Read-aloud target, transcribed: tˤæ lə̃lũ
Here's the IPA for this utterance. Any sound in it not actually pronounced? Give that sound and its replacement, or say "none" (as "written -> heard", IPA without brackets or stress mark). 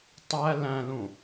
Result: ə̃ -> æ̃